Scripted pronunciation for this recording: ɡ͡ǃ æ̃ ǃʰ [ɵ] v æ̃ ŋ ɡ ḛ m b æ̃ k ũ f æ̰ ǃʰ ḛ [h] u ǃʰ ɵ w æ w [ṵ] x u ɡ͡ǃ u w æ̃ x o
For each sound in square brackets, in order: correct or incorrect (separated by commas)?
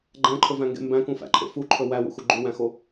correct, incorrect, correct